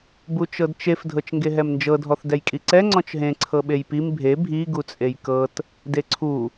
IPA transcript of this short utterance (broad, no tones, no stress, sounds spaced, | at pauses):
b u t͡ʃ ɤ d t͡ʃ e f dʱ ɤ t͡ʃ ŋ ɡ e ɦ ɛ m n d͡ʒ ɤ dʱ ɔ θ d ɛ j kʼ i ǀ ɛ ŋ͡ǀ ɔ̃ t͡ʃ ɦ ẽ ǀʰ ɤ ɓ e j p i m bʱ e bʱ i ɡ u t͡sʼ e j k ɤ t | d e ǀʰ u